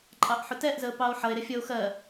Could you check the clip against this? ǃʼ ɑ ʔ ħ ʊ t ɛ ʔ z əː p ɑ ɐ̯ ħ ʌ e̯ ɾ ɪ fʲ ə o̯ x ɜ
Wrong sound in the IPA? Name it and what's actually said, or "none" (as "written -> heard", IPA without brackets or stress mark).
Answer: ɐ̯ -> o̯